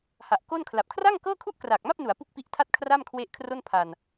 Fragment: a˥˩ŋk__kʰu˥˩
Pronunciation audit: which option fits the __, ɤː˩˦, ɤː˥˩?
ɤː˥˩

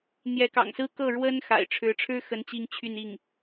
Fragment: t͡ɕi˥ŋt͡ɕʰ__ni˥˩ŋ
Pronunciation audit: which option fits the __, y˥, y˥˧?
y˥˧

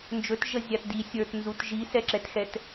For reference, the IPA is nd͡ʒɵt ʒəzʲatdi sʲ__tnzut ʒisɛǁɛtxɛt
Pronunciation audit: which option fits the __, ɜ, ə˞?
ə˞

